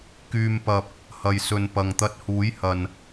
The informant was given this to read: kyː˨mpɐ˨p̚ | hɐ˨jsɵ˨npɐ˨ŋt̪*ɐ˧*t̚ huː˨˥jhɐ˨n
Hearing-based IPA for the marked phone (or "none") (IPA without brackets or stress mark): ɐ˧